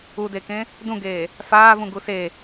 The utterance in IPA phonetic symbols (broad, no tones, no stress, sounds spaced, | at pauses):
u d e k ẽ | d ũ ɡ eː | f aː v ũ ɡ u s e